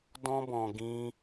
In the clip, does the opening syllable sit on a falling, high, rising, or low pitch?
high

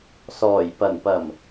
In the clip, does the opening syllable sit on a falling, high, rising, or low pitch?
low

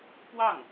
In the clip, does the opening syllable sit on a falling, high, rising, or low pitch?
falling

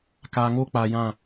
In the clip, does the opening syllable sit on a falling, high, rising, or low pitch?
low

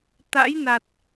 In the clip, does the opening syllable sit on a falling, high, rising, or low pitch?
rising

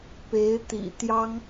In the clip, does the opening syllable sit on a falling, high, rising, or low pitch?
rising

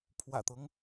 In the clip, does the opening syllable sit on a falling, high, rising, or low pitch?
low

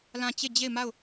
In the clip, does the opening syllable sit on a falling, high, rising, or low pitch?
falling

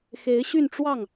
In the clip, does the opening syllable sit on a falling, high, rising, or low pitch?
rising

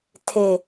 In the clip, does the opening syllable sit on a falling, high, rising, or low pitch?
low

